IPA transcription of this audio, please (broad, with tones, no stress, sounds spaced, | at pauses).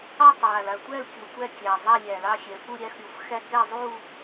ɑ˥˧ tˤ j a˨˩ l a˨˩ tʷ æ˥˧ l kʲ o˨˩ tʷ æ˥˧ kʲ æ˨˩ zˤ a˥˧ lʲ æ˨˩ l ɑ˥˧ xʲ ɛ˨˩ f u˥˧ ɾʲ æ˥˧ x ɾʲ o˨˩ f x æ˥˧ k ɛ˥˧ zˤ u˥˧